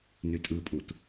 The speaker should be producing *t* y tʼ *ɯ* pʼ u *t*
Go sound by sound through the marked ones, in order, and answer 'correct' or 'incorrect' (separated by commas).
incorrect, correct, correct